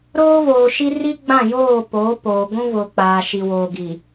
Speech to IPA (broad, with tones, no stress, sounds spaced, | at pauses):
ɾ oː˦ v oː˨ ʃ i˦ r i˦ ɡ͡b ã˦˨ j oː˦˨ p oː˨˦ p oː˨ ɡʷ ũ˦ v ʊ˨ k͡p aː˨ ʃ i˨ w oː˨ ɡ i˨